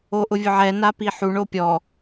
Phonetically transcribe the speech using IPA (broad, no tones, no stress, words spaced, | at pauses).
oʔʊvʲʊʕɛ napiħu ɳopʲɔ